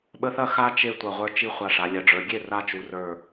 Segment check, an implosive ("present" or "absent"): present